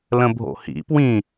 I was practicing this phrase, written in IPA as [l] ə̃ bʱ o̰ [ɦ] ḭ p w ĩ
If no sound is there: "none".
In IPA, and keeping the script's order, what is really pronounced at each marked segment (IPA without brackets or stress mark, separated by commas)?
l, h